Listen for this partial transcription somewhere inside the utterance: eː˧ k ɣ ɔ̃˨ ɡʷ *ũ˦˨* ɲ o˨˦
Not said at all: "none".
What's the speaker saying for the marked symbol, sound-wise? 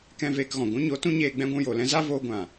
ũ˦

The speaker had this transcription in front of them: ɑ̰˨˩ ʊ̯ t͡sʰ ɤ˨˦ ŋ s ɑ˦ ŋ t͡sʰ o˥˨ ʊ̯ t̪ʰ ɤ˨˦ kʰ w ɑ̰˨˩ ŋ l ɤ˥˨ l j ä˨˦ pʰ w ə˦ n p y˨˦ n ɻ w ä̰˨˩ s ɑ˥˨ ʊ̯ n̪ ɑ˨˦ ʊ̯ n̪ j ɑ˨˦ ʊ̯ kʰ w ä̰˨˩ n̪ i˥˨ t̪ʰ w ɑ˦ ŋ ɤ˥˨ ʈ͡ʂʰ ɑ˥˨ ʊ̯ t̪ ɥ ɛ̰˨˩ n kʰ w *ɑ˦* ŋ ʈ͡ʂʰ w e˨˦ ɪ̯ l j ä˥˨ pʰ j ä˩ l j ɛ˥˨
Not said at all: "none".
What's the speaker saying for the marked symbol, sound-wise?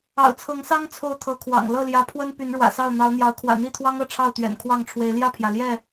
ɑ˥˨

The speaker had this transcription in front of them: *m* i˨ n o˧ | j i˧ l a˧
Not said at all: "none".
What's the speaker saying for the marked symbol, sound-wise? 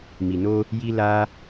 m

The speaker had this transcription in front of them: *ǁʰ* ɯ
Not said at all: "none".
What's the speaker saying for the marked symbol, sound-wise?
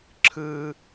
ǁʰ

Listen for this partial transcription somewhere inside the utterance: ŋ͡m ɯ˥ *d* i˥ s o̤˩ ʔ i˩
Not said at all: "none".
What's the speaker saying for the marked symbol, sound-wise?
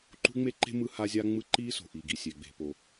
ǃ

